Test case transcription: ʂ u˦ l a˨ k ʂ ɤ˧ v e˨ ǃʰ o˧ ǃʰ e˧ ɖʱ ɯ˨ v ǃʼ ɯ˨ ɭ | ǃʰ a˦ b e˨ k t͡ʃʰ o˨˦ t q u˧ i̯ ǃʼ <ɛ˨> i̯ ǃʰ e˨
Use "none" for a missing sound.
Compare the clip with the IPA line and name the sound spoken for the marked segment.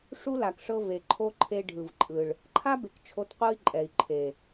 ɛ˨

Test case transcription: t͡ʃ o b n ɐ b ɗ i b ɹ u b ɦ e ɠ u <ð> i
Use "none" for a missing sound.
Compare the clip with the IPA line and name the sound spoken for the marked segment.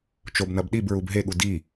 d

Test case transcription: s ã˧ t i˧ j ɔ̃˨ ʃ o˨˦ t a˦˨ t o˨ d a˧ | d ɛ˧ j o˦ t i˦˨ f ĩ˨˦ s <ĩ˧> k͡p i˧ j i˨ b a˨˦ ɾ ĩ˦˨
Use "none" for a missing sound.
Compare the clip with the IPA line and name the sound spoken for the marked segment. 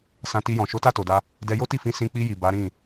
ĩ˧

